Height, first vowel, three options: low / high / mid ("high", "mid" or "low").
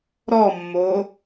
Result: mid